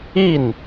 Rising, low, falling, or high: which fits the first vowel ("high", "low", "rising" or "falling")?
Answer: falling